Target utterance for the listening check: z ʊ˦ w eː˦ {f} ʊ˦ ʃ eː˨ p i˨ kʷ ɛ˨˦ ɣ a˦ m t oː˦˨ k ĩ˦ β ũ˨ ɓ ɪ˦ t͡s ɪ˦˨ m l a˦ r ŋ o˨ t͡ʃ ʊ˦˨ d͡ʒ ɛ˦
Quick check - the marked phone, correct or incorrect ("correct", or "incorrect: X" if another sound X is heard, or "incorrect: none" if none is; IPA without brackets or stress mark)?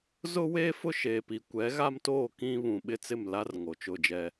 correct